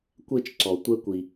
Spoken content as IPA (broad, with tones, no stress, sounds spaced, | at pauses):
kʷ e˥ t͡ʃ ǀ ɔ˨ tʷ ɛ˦ kʷ i˨